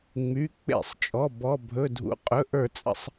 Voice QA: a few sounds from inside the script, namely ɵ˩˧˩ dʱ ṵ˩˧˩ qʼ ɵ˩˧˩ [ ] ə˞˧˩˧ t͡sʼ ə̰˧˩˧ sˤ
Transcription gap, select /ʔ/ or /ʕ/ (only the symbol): ʔ